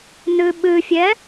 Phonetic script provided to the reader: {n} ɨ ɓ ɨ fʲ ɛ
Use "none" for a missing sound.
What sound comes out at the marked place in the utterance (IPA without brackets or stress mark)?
n